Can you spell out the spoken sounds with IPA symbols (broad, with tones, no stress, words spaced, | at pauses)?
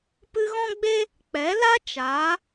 pɨ˧ɣɔ̃˦ɡ͡be˦ | k͡pɛ˨˦la˦ t͡ʃaː˨˦